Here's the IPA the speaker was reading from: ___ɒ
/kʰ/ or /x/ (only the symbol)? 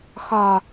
x